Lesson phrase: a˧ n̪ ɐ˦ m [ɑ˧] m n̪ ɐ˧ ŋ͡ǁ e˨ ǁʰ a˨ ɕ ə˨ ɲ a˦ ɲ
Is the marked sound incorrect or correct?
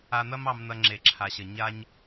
correct